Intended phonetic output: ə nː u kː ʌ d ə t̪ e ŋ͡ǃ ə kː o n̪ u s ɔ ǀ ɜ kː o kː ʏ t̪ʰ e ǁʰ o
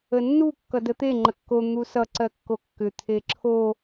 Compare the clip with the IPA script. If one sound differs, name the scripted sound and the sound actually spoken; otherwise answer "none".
ɔ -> ʌ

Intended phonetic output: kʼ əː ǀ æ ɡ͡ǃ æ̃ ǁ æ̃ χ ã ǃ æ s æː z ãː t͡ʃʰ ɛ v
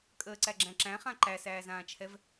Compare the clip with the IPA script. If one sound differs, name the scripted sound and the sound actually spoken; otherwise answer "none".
ɡ͡ǃ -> ɡ͡ǁ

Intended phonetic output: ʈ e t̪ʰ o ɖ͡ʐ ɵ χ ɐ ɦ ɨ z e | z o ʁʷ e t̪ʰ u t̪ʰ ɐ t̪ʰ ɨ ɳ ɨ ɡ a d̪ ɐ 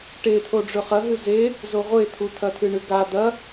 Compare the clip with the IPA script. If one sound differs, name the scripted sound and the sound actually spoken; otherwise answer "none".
none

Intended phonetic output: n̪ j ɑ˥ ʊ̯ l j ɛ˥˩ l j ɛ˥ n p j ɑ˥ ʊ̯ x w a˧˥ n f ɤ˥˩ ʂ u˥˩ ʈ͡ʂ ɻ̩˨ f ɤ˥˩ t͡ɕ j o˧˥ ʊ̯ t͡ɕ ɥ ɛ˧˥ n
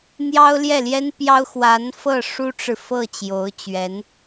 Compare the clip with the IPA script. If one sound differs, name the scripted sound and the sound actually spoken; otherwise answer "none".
u˥˩ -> u˥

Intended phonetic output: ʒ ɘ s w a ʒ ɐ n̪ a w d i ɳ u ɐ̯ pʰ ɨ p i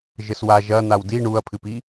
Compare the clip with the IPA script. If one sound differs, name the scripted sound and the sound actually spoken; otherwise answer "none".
none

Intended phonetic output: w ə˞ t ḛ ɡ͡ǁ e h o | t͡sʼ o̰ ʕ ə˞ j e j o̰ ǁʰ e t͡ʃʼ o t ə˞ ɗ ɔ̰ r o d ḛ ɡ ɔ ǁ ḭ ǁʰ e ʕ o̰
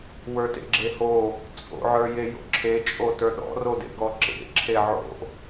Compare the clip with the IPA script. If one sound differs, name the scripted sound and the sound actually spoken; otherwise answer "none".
ḭ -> ḛ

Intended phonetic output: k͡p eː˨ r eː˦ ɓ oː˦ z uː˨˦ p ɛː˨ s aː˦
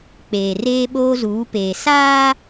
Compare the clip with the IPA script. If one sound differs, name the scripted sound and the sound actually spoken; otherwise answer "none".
ɛː˨ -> eː˨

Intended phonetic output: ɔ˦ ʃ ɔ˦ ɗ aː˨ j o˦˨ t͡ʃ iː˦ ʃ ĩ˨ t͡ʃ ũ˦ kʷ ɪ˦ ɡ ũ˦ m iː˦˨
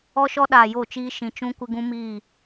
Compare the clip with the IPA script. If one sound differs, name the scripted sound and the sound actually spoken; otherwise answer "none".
none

